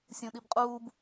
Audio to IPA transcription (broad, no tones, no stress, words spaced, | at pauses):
sʲũɗibqʼuːb